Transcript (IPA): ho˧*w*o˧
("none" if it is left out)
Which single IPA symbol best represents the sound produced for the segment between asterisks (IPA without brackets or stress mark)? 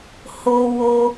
w